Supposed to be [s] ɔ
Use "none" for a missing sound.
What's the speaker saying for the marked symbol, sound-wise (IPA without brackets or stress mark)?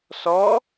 s